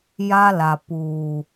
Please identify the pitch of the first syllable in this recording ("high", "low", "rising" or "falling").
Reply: high